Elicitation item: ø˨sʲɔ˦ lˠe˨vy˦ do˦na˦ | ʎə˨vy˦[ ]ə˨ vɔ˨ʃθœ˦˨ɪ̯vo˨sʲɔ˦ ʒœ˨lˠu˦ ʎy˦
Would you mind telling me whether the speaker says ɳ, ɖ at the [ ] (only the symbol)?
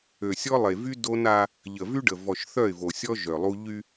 ɖ